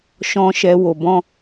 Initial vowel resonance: nasal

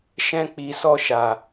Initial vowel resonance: nasal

